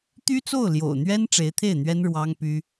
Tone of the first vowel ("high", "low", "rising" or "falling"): high